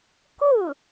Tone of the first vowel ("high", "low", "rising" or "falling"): falling